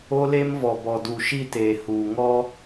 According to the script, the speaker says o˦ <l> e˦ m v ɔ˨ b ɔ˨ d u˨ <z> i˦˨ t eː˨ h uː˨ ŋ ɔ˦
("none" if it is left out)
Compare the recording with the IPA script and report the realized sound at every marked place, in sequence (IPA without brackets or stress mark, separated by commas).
l, ʃ